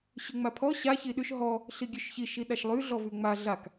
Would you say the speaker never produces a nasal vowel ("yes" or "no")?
yes